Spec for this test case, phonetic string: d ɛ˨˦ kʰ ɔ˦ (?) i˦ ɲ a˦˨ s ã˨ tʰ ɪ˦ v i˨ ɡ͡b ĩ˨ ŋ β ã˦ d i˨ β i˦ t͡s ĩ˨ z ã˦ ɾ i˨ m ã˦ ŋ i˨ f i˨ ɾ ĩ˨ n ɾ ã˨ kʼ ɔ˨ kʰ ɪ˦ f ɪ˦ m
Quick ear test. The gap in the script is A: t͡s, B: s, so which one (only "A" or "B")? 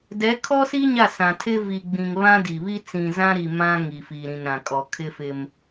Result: B